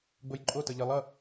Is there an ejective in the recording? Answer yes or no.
yes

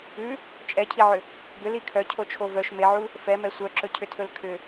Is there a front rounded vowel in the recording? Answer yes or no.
yes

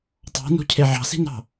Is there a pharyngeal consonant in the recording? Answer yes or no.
yes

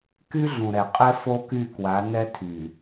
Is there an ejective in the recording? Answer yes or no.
yes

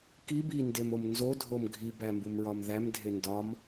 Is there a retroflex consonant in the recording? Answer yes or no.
no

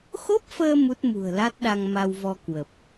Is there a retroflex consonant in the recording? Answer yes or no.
no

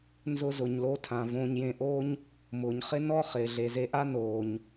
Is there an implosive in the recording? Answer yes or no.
no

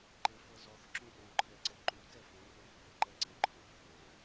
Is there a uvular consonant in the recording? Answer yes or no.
no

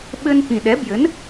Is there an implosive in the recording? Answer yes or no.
yes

